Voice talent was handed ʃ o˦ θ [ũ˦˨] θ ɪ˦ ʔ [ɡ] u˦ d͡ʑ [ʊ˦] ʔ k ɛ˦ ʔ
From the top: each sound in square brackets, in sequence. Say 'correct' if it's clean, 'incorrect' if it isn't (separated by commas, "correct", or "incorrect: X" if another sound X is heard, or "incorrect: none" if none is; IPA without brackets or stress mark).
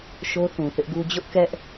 incorrect: ũ˨, correct, correct